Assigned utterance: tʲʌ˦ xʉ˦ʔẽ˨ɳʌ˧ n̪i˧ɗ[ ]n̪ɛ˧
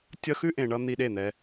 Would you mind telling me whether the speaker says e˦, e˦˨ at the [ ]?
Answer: e˦˨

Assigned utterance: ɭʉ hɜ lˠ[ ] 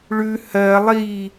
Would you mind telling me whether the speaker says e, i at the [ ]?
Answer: i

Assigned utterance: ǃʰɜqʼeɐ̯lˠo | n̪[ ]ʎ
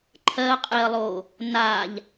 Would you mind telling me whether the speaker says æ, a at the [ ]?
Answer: a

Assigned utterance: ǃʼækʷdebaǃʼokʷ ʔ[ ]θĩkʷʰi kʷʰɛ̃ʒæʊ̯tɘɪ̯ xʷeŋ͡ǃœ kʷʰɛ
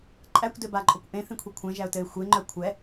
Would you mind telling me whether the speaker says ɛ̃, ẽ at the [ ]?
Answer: ẽ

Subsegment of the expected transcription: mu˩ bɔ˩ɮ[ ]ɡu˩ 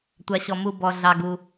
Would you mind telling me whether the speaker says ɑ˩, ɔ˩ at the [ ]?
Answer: ɑ˩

